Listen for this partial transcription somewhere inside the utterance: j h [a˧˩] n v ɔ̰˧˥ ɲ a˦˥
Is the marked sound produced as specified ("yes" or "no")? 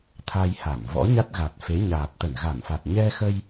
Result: yes